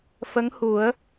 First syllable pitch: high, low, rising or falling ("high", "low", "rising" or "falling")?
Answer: rising